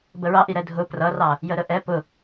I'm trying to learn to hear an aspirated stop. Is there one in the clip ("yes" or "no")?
no